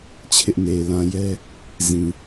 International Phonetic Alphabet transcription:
t͡ɕʰ ɪ˦ ʔ n e˨ ɪ̯ l ã˨ j ɛ˦ | z ĩ˨

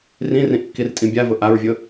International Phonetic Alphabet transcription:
r ĩ r ĩ ʔ kː i r tʼ ĩ bʲ a v ʊ ʔ a ɹ vʲ ʊ

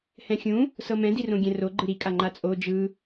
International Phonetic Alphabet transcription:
h ɛ̃ xʲ ũ | s ɤ m ɛ̃ d i r õ ɡʲ ɛ̃ r o ɡ͡ǃ ɯ ɾ i kʼ a ŋ͡ǃ a t͡sʼ o d͡ʒ ɯ

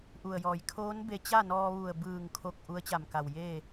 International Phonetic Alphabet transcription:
ʔ u˩ ə̯ j ɔː˩ j kʰ oː˧˥ n b e˧ t͡ɕ a˥˨ n ɔː˧ ʋ u˧˩ ə̯ b ɯː˧˩ ŋ kʰ o˧˩ k̚ ʔ u˧˥ ə̯ t͡ɕ a˧˩ m k a˩ w j eː˥˨

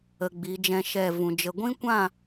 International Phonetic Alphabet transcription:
ə˧ ɡ͡b i˨˦ d͡ʒ ɛ̃˦ ʃ ɛ˦˨ v ũ˨ d͡ʒ ə˧ ɡʷ ĩ˦ kʷ ã˦˨

